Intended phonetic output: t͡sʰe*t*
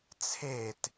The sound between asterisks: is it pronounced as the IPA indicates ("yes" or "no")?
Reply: yes